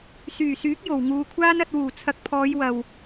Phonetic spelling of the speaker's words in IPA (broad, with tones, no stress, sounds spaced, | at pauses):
s yː˨˩ s yː˨˥ k̚ j o˨˩ w ŋ uː˨ kʷʰ aː˥ n ɐ˧ t̚ w uː˨˩ t͡sʰ ɐ˨˥ k̚ pʰ ɔː˨˧ j w ɐ˨ w